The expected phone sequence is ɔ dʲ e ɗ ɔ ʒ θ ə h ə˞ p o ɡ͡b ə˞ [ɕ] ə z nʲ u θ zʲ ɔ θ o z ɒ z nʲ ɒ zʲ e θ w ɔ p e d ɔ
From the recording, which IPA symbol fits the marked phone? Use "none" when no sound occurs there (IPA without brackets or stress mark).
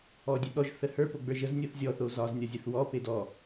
ʒ